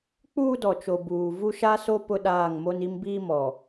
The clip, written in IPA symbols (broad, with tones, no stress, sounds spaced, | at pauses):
k͡p uː˦ d ɔ˨ t͡ʃ o˨ b uː˨ v u˦ ʃ a˦ s o˦ p ʊ˦ ɗ aː˦˨ ŋ m o˦ n i˦ m b iː˦ m ɔ˨